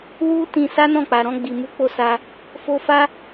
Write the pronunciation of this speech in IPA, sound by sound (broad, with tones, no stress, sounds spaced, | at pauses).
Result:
w u˦ t ĩ˧ s a˦ n ɔ̃˦˨ k͡p a˨ ɾ ɔ̃˧ ɡ͡b i˨ m u˧ k͡p o˦ s a˧ | f o˦ f a˦